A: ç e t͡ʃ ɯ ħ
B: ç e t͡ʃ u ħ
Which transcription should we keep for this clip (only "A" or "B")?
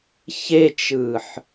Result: A